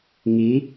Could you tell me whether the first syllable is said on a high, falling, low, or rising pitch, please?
rising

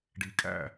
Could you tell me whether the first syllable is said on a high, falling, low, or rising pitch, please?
low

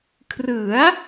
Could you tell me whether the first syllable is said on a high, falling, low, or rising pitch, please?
rising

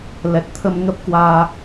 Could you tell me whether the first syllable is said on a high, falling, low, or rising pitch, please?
low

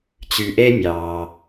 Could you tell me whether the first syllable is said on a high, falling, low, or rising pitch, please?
low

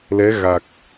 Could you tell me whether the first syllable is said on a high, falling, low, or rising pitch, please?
rising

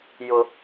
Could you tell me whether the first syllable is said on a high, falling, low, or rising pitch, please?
low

